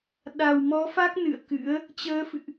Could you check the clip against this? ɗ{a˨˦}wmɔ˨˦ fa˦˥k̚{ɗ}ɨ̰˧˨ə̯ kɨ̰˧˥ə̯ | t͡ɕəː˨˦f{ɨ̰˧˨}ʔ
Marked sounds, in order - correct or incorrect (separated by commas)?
incorrect, incorrect, correct